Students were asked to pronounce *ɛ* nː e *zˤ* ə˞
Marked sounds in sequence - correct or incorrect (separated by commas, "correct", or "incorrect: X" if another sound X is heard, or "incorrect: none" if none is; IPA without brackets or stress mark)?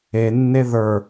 incorrect: e, incorrect: ð